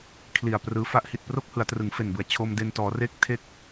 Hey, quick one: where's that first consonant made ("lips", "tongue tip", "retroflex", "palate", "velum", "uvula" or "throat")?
velum